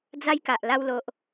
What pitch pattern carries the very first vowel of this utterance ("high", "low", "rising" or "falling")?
high